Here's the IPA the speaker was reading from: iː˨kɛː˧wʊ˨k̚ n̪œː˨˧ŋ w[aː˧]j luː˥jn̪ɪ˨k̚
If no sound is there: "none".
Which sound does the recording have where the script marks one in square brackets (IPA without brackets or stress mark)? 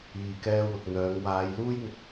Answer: aː˨˧